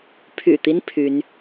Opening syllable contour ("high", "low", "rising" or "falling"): low